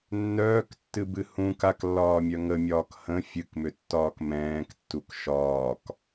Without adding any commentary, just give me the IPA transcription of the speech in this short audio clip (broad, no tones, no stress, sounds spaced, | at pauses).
nː œː k tː ɨ b ɨ h ũ k a k lː ɒː mʲ œ ŋ ə mʲ ɒː k h ə̃ fʲ ɨ k m ʏ tː ɒː k m ɛ̃ː k tː u k ʃ ɒː k